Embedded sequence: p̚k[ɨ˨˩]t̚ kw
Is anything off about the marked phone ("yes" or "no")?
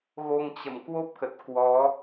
yes